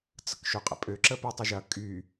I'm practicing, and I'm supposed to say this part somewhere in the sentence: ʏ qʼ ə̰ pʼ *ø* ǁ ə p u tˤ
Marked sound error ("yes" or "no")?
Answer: no